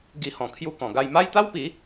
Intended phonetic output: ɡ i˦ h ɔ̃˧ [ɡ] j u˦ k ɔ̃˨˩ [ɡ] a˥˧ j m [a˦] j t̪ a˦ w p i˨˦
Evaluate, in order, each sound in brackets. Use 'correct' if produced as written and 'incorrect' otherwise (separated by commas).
incorrect, correct, correct